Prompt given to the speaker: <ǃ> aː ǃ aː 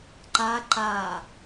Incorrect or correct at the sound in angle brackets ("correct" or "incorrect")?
correct